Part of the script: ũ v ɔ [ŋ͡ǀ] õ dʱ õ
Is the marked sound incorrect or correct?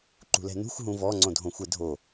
correct